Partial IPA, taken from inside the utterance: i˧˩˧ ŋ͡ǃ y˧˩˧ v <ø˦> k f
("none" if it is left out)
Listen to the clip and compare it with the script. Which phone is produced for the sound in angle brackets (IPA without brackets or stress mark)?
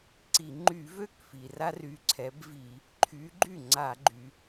ø˥˩